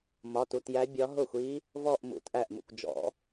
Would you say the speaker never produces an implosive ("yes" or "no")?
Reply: yes